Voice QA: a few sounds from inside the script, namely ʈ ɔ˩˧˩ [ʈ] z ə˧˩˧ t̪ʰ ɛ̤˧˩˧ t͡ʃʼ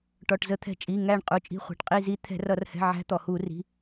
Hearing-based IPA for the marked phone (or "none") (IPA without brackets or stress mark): ʈ